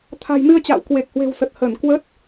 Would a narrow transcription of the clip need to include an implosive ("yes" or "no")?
no